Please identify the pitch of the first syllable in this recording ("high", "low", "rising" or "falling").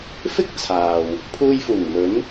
high